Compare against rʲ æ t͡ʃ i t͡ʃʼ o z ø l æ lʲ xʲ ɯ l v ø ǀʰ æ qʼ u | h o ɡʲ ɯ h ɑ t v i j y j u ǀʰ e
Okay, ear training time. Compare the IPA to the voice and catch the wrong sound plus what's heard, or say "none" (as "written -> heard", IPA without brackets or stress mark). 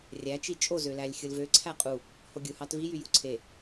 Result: none